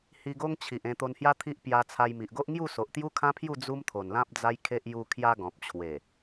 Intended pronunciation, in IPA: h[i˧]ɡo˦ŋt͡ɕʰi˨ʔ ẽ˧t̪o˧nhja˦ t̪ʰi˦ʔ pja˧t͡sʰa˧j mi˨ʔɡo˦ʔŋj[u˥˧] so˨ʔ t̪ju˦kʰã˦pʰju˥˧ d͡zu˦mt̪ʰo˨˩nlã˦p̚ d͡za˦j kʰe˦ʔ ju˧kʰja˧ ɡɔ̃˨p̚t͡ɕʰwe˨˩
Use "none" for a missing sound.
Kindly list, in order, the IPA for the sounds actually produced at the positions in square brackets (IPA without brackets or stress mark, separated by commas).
i˧, u˥˧